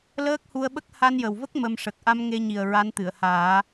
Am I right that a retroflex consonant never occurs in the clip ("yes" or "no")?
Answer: no